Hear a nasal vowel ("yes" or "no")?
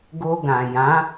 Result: yes